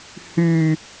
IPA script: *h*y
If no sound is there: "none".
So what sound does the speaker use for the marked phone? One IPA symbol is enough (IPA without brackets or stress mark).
h